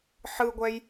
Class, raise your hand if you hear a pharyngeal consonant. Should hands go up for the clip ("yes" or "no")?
yes